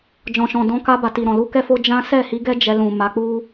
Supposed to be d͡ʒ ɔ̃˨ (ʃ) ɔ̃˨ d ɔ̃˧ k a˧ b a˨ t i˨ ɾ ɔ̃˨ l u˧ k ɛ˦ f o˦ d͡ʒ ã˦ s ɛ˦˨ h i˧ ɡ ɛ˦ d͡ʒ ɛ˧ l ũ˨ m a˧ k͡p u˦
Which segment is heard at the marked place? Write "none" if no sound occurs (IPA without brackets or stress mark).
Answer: ʃ